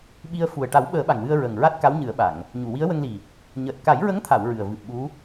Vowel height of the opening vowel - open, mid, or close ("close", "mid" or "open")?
close